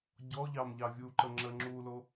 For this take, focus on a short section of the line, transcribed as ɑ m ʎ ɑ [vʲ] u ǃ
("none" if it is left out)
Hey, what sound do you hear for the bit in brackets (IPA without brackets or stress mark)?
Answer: vʲ